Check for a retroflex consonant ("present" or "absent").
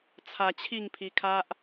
absent